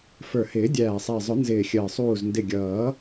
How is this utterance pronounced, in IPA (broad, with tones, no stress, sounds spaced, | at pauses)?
f ə˞˨˩ h ɪː˨˩˦ dʲ æː˨˩ sˤ æ˨˩ zˤ ʊ˨˩˦ n z ɪː˨˩ xʲ əː˨˩ sˤ uː˨˩ z n d ɪ˨˩ ɡʲ ʌː˨˩˦